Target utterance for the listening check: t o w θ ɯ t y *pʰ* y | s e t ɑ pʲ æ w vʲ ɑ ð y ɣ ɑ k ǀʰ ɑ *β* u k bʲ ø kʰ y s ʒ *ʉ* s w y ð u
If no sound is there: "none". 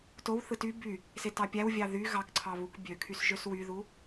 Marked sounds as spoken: b, β, ø

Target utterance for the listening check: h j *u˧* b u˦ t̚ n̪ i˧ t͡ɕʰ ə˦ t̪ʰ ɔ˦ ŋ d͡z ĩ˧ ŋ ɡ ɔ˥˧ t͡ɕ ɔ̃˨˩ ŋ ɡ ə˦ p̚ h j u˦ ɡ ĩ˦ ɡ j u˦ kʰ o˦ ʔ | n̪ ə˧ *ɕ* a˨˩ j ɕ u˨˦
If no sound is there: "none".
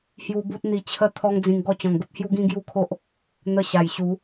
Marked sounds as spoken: u˧, ɕ

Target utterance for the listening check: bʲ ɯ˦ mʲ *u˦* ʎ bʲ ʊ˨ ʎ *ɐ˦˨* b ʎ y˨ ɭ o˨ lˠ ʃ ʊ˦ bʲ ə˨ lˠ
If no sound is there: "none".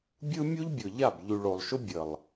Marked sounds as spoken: u˦, a˦˨

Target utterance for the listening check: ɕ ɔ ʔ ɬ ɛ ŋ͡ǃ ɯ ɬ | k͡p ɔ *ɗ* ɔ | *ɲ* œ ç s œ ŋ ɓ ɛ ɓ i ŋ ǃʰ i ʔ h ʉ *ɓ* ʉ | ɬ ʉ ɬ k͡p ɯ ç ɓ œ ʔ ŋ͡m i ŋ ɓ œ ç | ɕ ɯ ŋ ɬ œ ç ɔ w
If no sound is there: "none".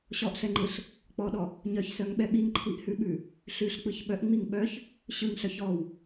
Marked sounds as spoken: ɗ, ɲ, ɓ

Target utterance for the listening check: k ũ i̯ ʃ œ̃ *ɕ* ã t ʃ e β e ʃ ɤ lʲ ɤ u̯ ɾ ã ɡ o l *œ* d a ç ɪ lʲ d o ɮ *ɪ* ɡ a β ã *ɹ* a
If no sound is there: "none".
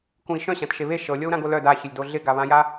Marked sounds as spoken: ɕ, œ, ɪ, j

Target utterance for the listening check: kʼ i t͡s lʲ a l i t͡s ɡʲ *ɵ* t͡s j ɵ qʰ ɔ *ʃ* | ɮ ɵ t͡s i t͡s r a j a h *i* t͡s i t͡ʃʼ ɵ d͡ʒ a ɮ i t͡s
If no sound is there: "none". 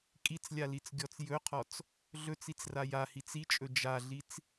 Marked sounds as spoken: ɔ, t͡s, i

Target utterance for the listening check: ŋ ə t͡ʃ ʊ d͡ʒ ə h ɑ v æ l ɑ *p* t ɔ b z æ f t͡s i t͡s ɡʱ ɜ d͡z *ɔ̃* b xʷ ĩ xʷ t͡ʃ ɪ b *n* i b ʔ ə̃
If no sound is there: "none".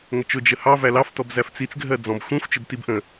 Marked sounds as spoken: f, ɔ̃, t

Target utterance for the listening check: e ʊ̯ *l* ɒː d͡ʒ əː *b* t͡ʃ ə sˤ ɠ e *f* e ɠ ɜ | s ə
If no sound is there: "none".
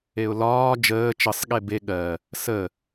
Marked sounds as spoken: l, none, b

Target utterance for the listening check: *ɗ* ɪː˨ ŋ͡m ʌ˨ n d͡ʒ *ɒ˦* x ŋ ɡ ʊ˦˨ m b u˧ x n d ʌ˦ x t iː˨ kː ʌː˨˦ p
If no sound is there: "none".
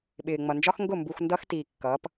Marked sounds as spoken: ɓ, ɒ˦

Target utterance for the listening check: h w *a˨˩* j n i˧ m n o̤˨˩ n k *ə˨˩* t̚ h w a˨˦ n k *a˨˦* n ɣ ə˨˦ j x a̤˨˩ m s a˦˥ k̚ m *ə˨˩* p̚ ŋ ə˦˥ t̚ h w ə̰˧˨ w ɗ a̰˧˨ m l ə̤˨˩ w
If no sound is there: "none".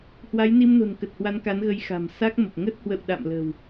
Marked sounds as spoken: a˨˦, ə˨˩, a˨˦, ə˨˩

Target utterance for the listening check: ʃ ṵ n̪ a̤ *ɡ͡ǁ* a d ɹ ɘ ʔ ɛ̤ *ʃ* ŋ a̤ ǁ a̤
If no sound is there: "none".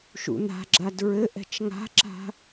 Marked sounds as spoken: ɡ͡ǁ, t͡ʃ

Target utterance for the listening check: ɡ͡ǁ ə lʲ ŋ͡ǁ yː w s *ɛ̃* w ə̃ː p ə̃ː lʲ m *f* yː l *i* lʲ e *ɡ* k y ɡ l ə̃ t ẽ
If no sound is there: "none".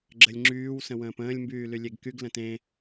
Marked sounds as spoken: ə̃, b, y, ɡ

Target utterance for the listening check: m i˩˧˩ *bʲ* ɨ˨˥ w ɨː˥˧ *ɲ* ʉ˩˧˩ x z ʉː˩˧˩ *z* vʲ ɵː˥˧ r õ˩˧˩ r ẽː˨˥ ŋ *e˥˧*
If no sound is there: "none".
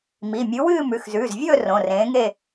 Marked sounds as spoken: mʲ, m, z, e˥˧

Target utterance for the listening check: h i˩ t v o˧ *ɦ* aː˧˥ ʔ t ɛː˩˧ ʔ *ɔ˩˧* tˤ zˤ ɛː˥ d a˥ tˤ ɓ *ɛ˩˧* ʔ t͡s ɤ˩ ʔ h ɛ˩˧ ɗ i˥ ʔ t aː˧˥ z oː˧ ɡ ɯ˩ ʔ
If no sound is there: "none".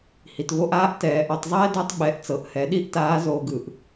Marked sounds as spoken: ʔ, ɔ˩˧, ɛ˩˧

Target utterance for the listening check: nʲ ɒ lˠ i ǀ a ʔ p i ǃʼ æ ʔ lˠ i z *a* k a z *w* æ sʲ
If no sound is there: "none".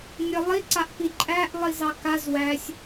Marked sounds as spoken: ɑ, w

